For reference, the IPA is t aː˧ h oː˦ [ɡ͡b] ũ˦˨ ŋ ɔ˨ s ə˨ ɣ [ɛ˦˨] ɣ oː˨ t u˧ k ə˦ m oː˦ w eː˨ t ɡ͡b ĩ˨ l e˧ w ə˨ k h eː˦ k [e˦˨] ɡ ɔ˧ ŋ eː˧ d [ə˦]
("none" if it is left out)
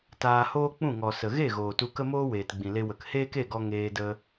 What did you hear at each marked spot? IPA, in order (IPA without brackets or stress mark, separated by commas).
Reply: k͡p, e˦˨, e˦˨, ə˦